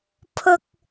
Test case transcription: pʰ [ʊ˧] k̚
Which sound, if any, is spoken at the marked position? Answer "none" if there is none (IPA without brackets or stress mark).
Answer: ʊ˥